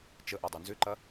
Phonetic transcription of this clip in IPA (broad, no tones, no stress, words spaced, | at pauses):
t͡ʃəʔadˤo nzʏǃɐ